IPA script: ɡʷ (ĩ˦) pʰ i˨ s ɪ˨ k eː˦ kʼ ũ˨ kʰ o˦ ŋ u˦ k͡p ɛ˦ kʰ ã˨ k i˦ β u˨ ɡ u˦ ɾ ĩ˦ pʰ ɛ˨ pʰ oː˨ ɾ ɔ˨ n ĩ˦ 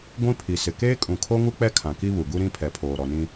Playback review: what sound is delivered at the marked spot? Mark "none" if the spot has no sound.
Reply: ĩ˦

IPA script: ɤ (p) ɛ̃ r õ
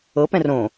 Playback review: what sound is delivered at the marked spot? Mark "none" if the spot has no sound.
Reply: p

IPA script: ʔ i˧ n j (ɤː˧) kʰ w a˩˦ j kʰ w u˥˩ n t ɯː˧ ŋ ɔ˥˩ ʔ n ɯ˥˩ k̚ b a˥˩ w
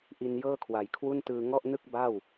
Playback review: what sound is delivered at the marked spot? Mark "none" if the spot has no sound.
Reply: ɤː˥˩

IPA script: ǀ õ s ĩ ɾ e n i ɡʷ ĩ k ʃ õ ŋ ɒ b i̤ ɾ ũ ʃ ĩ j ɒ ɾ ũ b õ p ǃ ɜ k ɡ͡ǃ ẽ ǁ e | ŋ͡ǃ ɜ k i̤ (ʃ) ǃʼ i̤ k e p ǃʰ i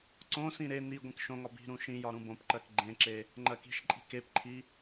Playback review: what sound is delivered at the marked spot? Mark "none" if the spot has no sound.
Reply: ʃ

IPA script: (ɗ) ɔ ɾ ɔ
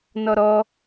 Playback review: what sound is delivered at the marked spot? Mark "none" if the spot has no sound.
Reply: n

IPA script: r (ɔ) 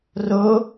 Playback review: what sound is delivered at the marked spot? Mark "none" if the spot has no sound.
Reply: o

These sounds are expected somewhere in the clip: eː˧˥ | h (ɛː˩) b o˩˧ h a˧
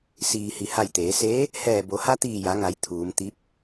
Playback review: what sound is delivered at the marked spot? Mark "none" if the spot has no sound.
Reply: ɛː˧˩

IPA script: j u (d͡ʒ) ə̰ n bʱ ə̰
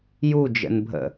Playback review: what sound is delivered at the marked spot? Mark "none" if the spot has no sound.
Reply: d͡ʒ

